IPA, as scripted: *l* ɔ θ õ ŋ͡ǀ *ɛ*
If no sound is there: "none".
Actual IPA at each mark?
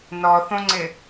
n, ɪ

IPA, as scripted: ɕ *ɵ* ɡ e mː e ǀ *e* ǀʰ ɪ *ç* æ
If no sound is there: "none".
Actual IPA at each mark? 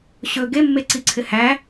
ɵ, i, h

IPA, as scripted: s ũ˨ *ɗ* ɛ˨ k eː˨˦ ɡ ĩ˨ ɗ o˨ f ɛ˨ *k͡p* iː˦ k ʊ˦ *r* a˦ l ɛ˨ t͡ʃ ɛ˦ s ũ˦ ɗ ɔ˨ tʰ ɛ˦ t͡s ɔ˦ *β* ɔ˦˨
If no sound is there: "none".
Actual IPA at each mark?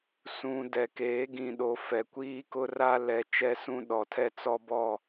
d, kʷ, r, b

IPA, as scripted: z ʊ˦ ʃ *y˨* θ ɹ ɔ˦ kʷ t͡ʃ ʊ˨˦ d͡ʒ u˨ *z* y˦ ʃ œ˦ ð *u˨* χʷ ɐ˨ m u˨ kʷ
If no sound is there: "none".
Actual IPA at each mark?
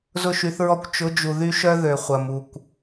y˨˦, ð, ø˨

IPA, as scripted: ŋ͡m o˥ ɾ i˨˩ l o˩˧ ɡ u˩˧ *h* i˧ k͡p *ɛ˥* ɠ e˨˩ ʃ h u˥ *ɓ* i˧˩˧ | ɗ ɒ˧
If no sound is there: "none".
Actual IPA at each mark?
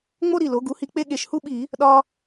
h, e˥, ɓ

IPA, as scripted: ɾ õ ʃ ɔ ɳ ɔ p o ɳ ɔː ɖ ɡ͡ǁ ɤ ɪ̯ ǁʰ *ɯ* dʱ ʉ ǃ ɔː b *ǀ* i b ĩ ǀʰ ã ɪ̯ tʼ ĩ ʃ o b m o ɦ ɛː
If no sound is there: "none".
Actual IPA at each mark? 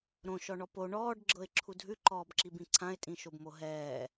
u, ǁ

